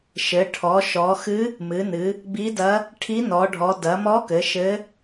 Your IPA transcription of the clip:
ʃ ɘ˩˧ ʈʰ ɔ˩˧ ʃ ɔ˩˧ x ɨ˧˥ | m ɨ˩˧ n ɨ˩˧ | b i˧˥ d ɐ˧˥ | ʈʰ i˧˥ n ɔ˩˧ ɖʱ ɔ˩˧ d ɐ˩˧ m ɔ˧˥ k ɘ˩˧ ʃ ɘ˧˥

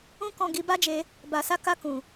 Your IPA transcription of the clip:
ũ˦ k ɔ̃˧ ɡ i˧ b a˦ d͡ʒ e˧ | b a˨ s a˧ k a˧ k ũ˨

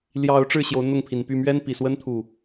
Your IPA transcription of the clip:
l j ɑ˨˦ ʊ̯ ʈ͡ʂ ɻ̩˥˨ ɕ j o˨˦ ʊ̯ n̪ ʊ˥˨ ŋ pʰ i˨˩ n p y˥˨ m ɥ ɛ˦ n p i˨˩ s w ə˦ n t̪ʰ u˥˨

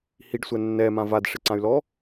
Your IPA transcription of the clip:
h i ɖ sʷ ɛ nː ɛ m ã v a d ʂ ɪ ǀ ã y̯ l ɔ

